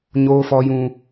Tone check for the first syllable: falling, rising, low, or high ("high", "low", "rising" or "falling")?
high